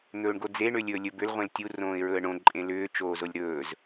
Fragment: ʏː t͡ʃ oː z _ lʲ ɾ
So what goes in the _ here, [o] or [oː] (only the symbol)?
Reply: o